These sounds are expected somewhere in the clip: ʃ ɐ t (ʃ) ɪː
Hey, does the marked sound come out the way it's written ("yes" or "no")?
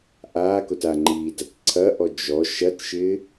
yes